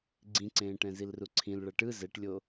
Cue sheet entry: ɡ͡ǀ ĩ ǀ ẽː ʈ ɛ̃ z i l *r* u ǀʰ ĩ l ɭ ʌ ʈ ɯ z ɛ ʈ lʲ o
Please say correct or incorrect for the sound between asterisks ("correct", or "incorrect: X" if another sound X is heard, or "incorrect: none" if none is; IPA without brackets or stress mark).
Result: correct